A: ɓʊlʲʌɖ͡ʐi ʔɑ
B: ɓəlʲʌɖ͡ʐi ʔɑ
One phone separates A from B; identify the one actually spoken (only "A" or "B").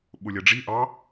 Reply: A